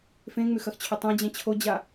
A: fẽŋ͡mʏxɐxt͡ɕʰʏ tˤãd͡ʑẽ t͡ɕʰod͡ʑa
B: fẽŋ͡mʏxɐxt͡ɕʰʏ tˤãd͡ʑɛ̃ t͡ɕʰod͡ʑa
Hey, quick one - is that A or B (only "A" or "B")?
B